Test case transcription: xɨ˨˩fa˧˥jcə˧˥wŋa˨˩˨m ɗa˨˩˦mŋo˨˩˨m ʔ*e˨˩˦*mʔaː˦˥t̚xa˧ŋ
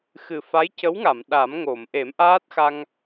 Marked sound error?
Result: no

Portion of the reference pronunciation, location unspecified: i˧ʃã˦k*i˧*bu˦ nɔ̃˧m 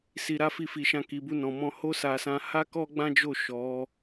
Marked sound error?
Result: no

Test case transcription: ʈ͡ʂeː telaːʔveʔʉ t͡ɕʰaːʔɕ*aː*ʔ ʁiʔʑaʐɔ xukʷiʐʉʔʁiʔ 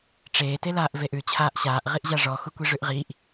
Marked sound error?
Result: no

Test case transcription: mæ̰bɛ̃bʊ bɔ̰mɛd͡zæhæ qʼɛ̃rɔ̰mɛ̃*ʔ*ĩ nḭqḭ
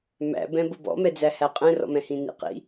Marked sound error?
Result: yes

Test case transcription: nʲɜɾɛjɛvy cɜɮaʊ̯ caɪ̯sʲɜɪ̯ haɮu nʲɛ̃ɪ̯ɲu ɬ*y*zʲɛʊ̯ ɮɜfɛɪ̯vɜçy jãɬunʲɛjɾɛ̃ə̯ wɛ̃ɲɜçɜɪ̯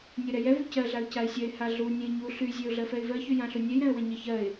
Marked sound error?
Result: no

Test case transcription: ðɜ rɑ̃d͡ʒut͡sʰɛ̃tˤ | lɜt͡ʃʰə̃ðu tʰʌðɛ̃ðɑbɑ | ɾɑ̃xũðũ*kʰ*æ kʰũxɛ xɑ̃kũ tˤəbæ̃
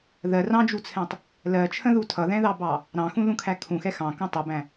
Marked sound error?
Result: no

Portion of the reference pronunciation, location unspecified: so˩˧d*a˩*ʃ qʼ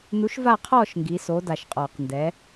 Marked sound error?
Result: no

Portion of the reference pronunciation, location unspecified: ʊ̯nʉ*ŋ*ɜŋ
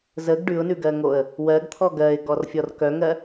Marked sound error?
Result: yes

